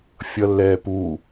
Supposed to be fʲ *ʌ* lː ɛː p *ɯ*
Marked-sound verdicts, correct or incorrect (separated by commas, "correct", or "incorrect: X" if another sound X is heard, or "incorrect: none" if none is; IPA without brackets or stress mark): correct, incorrect: u